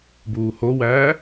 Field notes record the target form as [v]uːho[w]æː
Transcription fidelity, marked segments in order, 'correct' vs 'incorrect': incorrect: b, correct

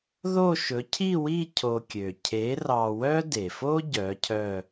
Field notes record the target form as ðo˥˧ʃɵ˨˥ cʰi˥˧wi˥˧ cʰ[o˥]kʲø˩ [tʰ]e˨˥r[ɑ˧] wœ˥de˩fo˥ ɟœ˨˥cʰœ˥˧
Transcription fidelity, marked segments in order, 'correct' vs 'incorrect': incorrect: o˧, incorrect: cʰ, correct

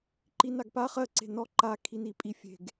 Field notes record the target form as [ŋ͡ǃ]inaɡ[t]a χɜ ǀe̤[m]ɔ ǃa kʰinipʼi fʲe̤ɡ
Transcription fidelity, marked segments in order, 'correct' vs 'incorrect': incorrect: ǃ, incorrect: p, incorrect: n

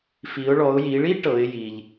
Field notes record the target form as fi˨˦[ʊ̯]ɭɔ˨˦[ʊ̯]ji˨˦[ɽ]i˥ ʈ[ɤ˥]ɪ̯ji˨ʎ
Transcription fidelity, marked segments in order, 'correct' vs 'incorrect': correct, correct, incorrect: ɭ, incorrect: ɤ˨˦

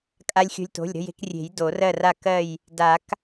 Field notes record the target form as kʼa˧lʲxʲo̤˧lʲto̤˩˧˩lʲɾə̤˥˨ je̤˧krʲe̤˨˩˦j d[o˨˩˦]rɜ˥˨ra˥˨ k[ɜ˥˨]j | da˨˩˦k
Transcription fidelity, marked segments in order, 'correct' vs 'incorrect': correct, correct

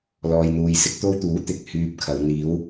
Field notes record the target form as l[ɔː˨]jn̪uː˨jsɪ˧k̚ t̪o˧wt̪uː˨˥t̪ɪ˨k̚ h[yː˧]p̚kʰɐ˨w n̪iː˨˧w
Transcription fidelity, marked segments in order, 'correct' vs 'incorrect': correct, incorrect: yː˨

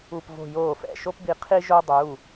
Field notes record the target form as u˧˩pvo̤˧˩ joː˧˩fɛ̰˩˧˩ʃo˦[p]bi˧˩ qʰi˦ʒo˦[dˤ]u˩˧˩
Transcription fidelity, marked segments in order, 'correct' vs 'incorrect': correct, correct

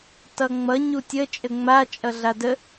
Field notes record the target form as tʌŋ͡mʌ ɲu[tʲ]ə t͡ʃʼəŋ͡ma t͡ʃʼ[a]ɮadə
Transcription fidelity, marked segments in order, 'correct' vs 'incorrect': correct, incorrect: ʌ

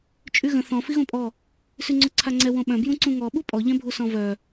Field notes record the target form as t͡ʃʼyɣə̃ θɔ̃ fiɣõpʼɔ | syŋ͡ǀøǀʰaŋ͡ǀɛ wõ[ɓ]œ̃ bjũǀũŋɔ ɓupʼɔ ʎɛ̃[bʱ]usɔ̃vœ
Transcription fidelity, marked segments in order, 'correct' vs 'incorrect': correct, correct

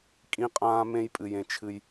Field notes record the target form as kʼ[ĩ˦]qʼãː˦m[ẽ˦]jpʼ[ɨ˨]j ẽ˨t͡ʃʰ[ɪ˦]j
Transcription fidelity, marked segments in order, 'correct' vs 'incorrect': correct, correct, correct, incorrect: ɨ˦

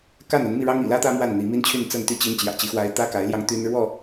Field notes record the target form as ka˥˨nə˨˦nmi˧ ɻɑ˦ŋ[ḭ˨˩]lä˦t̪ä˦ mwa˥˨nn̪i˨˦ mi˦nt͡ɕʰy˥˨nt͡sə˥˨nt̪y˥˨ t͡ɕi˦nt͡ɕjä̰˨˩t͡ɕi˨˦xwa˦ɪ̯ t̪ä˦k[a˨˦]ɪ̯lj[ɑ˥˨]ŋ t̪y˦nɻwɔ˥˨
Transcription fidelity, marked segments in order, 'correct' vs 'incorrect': correct, correct, incorrect: ɑ˧

